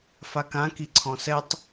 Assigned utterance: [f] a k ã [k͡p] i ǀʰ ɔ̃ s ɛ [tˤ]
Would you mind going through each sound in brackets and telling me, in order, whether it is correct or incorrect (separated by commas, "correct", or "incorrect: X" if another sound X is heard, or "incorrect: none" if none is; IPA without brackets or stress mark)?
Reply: correct, incorrect: k, correct